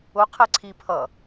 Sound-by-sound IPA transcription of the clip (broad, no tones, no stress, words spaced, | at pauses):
ʊ qʰɛǀʰi pʰʌ